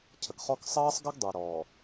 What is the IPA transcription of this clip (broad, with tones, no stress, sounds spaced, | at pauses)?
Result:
cʰ ə˨ ɡ χ ɔ˦ k sˤ ʌː˦ sˤ ɡ ʌ˦ ɡ dˤ u˨ ɾ ɔː˨